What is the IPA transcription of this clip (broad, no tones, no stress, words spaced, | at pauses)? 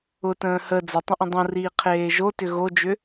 ʊtə̃ː hə d͡zə tˤə̃ʔə̃dˤõriː qʰeːʒotʏ ɣod͡ʒʏ